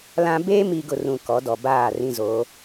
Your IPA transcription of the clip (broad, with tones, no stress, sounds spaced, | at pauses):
l ã˦ b eː˦ m i˨ ɡ ʊ˨ r ũ˨ k ɔ˨˦ d ɔ˨ b aː˦˨ r ĩ˦ z o˨˦